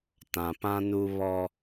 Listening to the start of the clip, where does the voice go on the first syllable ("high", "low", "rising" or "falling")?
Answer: low